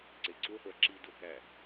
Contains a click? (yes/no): yes